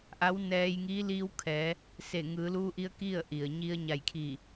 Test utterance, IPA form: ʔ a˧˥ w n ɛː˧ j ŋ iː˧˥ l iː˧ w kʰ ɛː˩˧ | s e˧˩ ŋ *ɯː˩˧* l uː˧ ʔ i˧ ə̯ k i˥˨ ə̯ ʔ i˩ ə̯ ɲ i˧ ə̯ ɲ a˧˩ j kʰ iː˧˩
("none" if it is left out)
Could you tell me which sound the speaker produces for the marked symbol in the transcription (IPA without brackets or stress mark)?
ɯː˩˧